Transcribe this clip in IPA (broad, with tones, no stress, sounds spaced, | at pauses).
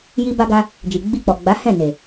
j i˧ b a˧ ɡ a˧ | d͡ʒ i˨ ɡ͡b i˧ k͡p ɔ˨ ɡ͡b a˨˦ h ɛ̃˦˨ n e˨